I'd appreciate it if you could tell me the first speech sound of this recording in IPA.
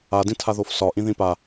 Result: a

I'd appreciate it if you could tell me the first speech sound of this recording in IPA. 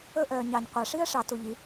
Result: ɵ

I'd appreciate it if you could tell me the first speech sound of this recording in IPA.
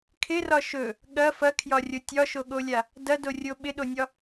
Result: kʰ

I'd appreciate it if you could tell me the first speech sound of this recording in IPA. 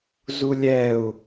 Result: z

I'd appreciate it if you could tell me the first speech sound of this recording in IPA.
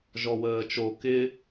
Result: ʒ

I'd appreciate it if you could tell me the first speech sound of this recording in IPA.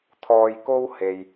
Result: t̪ʰ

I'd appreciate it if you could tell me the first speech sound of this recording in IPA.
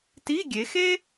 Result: t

